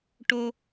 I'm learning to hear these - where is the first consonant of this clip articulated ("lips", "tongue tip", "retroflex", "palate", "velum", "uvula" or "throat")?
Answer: retroflex